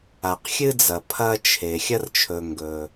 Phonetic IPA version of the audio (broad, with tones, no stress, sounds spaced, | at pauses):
a˩ q xʲ ɨ˦ d͡z ɐ˩ pʰ ɐ˦ t͡ʃʰ e˩ xʲ ɐ˦ r t͡ʃʰ ɵ˩ ŋ ɡ ɵ˩